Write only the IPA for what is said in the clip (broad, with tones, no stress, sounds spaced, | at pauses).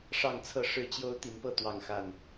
ʂ ɑ˥˨ ŋ t͡sʰ ɤ˥˨ ʂ ɻ̩˥˨ t͡ɕ j o˦ ʊ̯ t̪ i˨˦ n p ɤ˥˨ t̪ w ɑ˥˨ ŋ x a˥˨ n